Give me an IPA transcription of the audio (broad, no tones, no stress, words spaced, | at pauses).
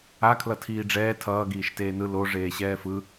a kʰlʌtʰiːɖ͡ʐɛː tʰʌːɡiːʃ teːnɯ lo ʐeːɕɛːfɯ